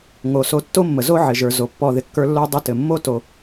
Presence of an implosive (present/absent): absent